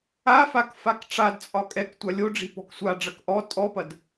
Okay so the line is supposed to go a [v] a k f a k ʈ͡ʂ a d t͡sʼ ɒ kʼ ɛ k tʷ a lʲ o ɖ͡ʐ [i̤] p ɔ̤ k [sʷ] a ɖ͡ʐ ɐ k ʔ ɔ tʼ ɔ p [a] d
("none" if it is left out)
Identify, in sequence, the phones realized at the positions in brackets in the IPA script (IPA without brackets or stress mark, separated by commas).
f, i̤, sʷ, ɐ